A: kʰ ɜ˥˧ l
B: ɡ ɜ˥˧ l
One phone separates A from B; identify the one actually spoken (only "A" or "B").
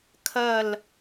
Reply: A